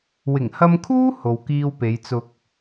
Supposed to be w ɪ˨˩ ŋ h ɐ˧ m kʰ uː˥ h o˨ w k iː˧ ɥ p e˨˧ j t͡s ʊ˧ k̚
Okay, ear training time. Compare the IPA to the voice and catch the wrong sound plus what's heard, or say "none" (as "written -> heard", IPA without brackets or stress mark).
ɥ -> w